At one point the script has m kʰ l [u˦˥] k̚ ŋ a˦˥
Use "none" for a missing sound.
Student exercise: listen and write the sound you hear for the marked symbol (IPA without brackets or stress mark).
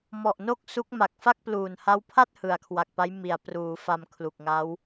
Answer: u˨˩